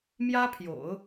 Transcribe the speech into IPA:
m j ä˥ pʰ j o̰˨˩˦ ʊ̯

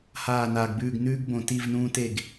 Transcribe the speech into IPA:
h aː˦˨ n aː˨ ɡ b ʉː˦˨ ɡ n ʉː˦ ɡ b õ˨ t i˦˨ v n ũː˦ t e˦˨ ɡ

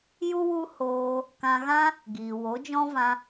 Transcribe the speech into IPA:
j u˦ w u˦ h oː˧ | k ã˧ ɣ ã˦ | ɡ iː˨ w o˨˦ d͡ʒ ɔ̃˦ v ã˧

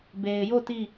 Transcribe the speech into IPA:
b e˨ ɪ̯ j o˦˨ t i˦˨

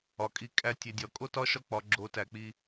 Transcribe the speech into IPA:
ɒ˧ kʼ i˦ kʼ æ˦ tʲ e˧ dʲ ɒ˧ kʼ o˦ t ɒ˦ ʃ ɒ˦ k͡p ɒ˧ ɡ͡ǁ o˨˦ t æ˨ k͡p i˧

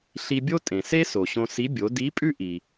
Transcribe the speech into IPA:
ɬ i˧ bʲ o˥ tʼ ẽ˩ s e˥ s o˩ ɕ õ˧ s i˧˥ bʲ o˩˧ d i˧˥ pʼ ʉ˥ ʔ i˩

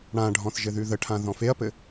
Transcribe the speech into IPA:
ɽ ã ɖʱ ɔ̃ θ ʒ ɘ ð ʉ ð ə ʈʰ ã ð ɔ̃ f e ɐ̯ p ɘ

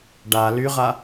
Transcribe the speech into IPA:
ɖ a l y ʁ a

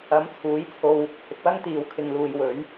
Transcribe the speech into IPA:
ɐ˨˥ m t͡sʰ uː˨˥ j t͡sʰ o˧ w | h ɪ˨ k̚ w ɐ˥ ŋ t̪ iː˨ w kʰ ɪ˨ ŋ l uː˨ j w ɵ˨˥ ɥ

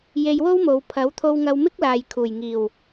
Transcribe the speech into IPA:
j e˧ j w o˥ w m o˨˧ w pʰ ɐ˨˥ w t̪ʰ o˧ w ŋ ɐ˧ w m ɪ˥ k̚ l aː˨ j kʰ uː˨˩ j ŋ iː˨˩ w

